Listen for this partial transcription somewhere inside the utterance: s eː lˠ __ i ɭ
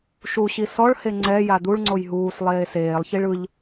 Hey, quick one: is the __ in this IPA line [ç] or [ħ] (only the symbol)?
ç